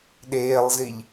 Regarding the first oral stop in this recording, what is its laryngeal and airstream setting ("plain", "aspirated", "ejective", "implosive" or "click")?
implosive